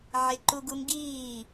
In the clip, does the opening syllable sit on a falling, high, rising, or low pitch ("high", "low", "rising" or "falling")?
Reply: high